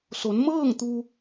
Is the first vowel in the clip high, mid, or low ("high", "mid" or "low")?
mid